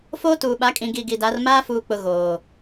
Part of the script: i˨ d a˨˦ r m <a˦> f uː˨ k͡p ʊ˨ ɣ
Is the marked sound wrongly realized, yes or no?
yes